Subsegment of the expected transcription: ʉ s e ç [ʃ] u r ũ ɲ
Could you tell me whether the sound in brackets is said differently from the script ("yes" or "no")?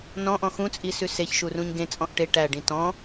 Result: no